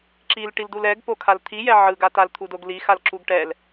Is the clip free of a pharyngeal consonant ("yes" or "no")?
no